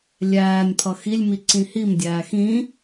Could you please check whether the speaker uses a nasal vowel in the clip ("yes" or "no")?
yes